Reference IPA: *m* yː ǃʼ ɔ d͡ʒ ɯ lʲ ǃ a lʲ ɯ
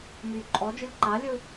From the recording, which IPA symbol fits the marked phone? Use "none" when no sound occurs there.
m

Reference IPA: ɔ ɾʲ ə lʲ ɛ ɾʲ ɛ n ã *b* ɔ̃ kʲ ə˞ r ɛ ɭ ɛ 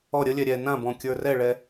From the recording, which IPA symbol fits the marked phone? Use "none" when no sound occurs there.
b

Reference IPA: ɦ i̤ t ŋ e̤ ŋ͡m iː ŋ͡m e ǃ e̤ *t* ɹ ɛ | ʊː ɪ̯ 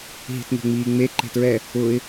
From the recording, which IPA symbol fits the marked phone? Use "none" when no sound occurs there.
t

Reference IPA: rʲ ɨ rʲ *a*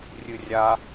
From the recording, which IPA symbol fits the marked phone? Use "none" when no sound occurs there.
a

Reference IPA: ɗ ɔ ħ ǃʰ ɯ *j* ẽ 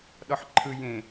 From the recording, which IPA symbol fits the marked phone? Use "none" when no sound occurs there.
j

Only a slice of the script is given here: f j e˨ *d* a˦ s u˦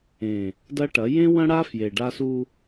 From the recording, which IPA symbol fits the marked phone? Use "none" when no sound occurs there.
ɖ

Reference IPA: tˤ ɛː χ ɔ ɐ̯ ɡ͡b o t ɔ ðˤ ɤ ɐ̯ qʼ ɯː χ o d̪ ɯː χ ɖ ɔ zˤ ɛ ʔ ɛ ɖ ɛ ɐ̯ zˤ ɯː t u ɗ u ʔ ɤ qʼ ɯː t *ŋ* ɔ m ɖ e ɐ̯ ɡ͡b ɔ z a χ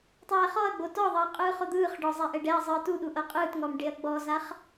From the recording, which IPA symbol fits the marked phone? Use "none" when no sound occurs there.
ŋ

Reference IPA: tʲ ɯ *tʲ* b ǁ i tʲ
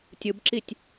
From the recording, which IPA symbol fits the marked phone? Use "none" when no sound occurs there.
none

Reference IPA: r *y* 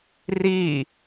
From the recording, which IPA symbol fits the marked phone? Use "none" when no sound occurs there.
i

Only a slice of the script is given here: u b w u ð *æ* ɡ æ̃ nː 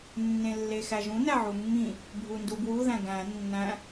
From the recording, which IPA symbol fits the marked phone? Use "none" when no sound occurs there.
æ̃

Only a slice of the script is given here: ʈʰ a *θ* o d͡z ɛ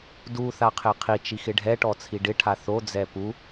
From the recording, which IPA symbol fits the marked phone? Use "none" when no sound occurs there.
θ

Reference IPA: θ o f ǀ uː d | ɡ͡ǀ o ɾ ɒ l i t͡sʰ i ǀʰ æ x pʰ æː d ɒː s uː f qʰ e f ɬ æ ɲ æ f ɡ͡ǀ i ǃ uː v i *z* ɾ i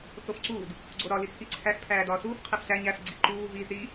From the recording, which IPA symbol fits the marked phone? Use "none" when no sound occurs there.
z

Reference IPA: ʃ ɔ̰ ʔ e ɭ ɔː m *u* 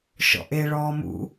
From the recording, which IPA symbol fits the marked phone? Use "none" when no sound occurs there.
ṵ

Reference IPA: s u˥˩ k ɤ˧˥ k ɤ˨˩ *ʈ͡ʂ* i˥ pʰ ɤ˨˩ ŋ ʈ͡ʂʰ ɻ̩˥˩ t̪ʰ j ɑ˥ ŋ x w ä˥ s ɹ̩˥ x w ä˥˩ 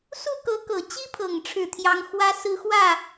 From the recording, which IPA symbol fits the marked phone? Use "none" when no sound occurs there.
t͡ɕ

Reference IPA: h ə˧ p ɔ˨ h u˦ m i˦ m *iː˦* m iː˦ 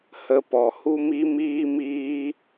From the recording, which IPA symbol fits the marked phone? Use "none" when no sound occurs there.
iː˦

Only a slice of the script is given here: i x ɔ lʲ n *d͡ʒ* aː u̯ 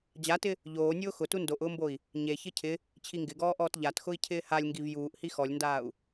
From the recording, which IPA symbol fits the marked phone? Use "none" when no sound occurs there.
d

